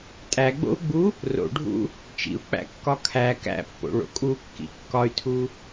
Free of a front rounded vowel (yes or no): no